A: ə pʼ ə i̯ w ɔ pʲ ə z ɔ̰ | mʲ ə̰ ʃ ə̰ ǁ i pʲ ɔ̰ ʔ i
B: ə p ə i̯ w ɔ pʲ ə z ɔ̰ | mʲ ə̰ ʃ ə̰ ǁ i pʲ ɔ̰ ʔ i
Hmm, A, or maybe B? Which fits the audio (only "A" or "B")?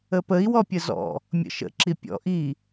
B